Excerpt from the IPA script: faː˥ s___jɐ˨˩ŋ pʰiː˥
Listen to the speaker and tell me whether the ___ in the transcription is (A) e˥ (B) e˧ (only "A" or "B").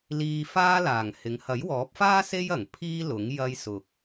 A